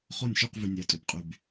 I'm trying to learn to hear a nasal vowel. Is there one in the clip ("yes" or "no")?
no